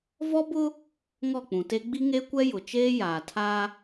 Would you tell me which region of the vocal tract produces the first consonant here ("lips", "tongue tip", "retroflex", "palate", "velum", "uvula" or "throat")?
lips